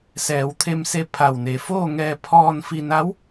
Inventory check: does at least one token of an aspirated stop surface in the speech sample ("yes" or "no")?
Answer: yes